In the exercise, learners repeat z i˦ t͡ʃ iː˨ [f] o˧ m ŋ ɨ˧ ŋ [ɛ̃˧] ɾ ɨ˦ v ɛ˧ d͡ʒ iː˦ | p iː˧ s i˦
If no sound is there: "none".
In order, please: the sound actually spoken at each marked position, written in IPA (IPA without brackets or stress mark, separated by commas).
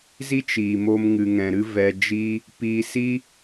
m, ɛ̃˧